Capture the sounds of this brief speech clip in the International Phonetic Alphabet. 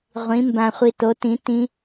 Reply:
ʁʷ ĩ˨˥ m b ã˧ χʷ i˧ t o˨˥ t ĩ˨˥ t ĩ˦˥

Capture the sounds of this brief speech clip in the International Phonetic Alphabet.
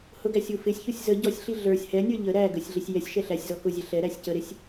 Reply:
h ʊ ɡ æ sʲ u f ɪ sʲ ç u sʲ z ə ɟ ɔ sʲ ɬ i ɮ ə˞ sʲ h ɛ nʲ ə˞ ʎ ə ɾ æ ɡ ə sʲ ɮ ɪ sʲ j ɛ sʲ ʃ ɛ ɬ æ sʲ z ɔ k ʊ zʲ ɛ ɬ ɛ ɾ æ sʲ c ə ɾ ɪ sʲ

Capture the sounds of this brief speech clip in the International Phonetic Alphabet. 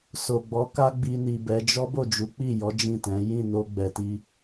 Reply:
s o˨ ɡ͡b ɔ˨˦ k a˦ ɡ͡b i˧ n i˨ b ɛ˨˦ d͡ʒ ɔ˦ b o˦˨ d͡ʒ u˨˦ k͡p i˦˨ j ɔ˨˦ d͡ʒ ĩ˦˨ t ɛ̃˨˦ j ĩ˦˨ n o˧ ɡ͡b ɛ˨ t i˧

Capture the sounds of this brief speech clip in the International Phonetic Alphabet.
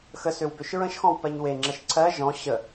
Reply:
x ə s ø w b ø ʃ ɹ ə̃ ʃ x ɔ̃ w p ɜ ɲ w e ŋ͡ǁ ə ʃ ǀʰ ɜ ʒ ɔ̃ ɕ ə

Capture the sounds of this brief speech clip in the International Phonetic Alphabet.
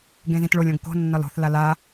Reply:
ɡ ẽ z ĩ t ɭ o lʲ õ ɡ k o̤ nː ɒ l o̤ θ l a l a

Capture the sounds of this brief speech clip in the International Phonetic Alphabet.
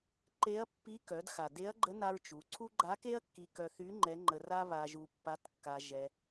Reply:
ǃ e˧˥ ɐ̯ pː i˧˥ k œ˩˧ d x a˩ d e˧˥ ɐ̯ ɡ͡ǃ ə˧˥ n a˧ ɹ t͡ʃ u˩˧ ǀʰ u˥ ɡ͡ǃ a˧˥ k e˥ ɐ̯ kː i˧ k œ˧ θ y˧˥ ŋ͡ǃ ɛ˧˥ ŋ͡ǃ ə˧ r a˥ β a˧ ʒ u˧ pː a˧˥ t kː a˧ ʒ ɛ˧

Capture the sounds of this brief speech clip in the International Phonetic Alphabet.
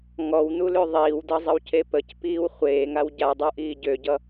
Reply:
ŋ ɔ w n u l ø ðˤ iː w d ʌ zˤ ə w c e p ə c p iː w χʷ eː ŋ a w ɟ a dˤ u ʔ iː ɟ ø ɟ ʌ

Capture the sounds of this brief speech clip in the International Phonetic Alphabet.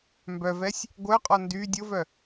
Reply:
m b œ v ɛ sʲ | ɡʷ œ qʼ ɔ n d y dʲ o v œ

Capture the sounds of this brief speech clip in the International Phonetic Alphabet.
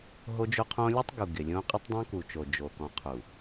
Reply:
ɦ o˦ d͡ʒ o˦ qʰ õ˦ lʲ u˦ tˤ ɡ u˨ ɡ ɪ˨ lʲ õ˦ qʼ ɪ˦ tˤ dˤ õ˦ k u˨ t͡ʃ o˨ d͡ʒ o˨ k ɔ̃˨ qʰ u˨

